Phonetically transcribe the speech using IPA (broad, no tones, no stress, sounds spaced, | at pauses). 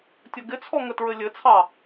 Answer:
tʲ ə ɡ ɪ t͡sʰ ɔ ŋ ə t ɹ ɘ lʲ ɘ t͡sʰ ɑ